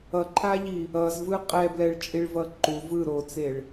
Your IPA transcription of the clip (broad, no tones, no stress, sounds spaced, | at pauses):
ʌ ǃʰ a ʎ i | ʌ z v ɯ qʼ ɛ b l ɛ ɭ t͡ʃʼ i ɭ v ʌ ǃ u v ɯ ɾ o t͡s e ɭ